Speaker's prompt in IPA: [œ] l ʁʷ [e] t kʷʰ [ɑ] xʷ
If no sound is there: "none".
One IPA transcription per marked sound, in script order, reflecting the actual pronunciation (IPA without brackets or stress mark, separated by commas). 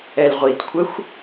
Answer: ɛ, i, ə